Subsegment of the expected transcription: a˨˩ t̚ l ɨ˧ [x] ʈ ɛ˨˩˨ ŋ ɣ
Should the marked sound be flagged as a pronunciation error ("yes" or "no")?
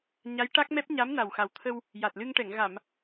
yes